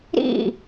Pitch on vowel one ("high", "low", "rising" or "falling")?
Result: falling